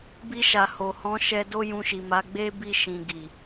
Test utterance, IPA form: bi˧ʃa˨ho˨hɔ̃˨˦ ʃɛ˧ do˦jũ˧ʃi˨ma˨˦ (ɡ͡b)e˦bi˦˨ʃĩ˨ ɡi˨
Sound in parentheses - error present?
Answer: no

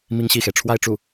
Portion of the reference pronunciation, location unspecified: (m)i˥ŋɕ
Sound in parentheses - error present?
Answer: no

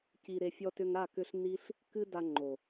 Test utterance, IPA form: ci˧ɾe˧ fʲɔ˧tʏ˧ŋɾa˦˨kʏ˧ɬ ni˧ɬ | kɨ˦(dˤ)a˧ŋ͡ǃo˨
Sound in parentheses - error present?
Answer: yes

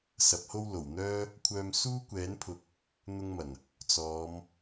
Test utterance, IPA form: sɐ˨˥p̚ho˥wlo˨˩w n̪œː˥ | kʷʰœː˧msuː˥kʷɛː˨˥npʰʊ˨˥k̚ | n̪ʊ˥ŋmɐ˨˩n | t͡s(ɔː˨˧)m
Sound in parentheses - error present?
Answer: no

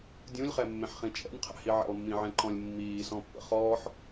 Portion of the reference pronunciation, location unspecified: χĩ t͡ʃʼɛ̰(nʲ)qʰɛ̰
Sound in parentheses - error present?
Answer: no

